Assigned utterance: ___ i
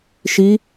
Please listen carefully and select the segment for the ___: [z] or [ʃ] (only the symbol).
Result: ʃ